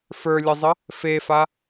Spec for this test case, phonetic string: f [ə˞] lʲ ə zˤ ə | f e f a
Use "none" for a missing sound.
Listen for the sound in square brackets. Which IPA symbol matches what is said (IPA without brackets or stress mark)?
ə˞